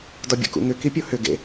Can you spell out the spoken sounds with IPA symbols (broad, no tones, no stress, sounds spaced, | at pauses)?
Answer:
d ɒ bʲ ṵ k ṵ ŋ ʏ k i pʲ o h ʏ ɡ ḛ